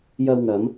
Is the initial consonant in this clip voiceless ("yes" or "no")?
no